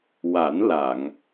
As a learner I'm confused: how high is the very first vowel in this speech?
low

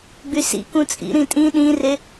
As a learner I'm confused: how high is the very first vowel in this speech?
high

